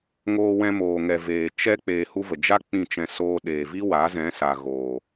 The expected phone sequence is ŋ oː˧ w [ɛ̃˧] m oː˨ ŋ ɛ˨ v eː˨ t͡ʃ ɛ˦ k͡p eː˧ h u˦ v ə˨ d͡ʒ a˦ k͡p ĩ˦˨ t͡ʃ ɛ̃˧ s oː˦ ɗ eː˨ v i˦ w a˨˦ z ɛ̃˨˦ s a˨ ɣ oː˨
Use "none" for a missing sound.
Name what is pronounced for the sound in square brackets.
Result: ɛ̃˧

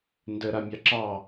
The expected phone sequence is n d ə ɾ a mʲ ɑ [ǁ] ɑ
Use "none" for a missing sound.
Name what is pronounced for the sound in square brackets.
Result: ǁ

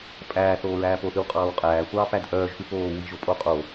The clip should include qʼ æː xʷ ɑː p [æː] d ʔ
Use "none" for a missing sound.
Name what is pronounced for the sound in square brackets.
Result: æ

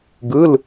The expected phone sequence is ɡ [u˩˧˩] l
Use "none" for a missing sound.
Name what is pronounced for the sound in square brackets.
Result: ɯ˩˧˩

